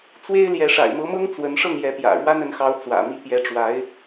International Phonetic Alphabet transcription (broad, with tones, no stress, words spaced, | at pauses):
t͡swe˥ɪ̯ljɛ˧˥ ʂa̰˨˩ɪ̯mɤ˧˥mɤ˥ŋ t͡swə˧˥nʂɤ˥˩ŋjɛ˧˥pjä̰˨˩ ɻwa˥nə˧˥nxɑ˧˥ʊ̯ t͡swä̰˨˩mi˥˩ pjɛ˧˥ʈ͡ʂwa˧˥ɪ̯